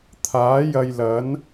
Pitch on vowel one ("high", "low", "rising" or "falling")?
rising